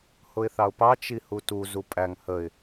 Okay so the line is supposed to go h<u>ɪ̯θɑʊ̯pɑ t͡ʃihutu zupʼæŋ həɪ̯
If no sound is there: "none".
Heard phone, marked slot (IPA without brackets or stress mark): ʊ